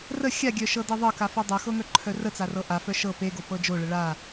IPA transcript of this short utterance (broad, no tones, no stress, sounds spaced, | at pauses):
r ə xʲ a ɡʲ œ ʃ ɤ d e ðˤ ɤ k a f o dˤ ɤ x ɤ ŋ œ ǃʰ œ r ə t͡s a r ɤ ʔ a f œ ʃ ɤ p e ɡ o p ɤ d͡ʒ o ɭ ə ɭ a